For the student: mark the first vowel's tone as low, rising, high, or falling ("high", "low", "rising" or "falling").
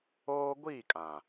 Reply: high